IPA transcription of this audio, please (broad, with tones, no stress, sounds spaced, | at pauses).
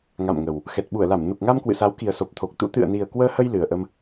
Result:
ŋ a̰˧˨ m ŋ ə˨˩ w | x ɛ˨˩ t̚ ɓ u˧˩ ə̯ l a˧˩ m n u˨˩ k̚ ŋ a˧ m k w ɨ̰˧˨ s a˨˦ w k i˨˩ ə̯ s o˨˩ p̚ t̪ʰ o˨˩ k̚ t̪ ṵ˧˥ t̪ ɨ̰˧˨ ə̯ n i˨˩ ə̯ k w əː˧ h ə˧ j l ɨ˨˩ ə̯ ʔ ə˧ m